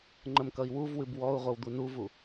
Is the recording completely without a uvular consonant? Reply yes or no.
no